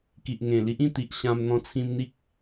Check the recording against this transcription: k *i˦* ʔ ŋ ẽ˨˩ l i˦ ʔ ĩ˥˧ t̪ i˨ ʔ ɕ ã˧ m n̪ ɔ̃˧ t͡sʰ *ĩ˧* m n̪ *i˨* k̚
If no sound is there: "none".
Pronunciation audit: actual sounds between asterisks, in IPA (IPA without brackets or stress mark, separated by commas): i˨, ĩ˧, i˦